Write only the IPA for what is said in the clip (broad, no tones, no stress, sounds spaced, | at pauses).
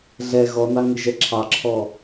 ɮ ɛ ɣ ɔ n ɑ ŋ ɪ ʒ ɛ ǁʰ ɑ ǁʰ ɔ